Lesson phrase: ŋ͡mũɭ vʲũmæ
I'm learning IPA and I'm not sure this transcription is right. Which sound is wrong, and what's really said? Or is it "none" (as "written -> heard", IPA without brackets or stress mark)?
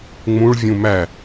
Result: none